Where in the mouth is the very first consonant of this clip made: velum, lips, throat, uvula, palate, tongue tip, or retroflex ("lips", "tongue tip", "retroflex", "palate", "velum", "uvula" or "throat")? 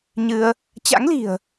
palate